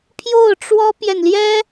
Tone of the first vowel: falling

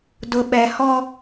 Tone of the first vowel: low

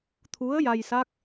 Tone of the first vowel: rising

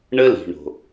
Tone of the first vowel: high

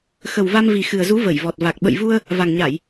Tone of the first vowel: low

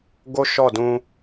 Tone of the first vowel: high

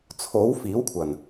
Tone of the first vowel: rising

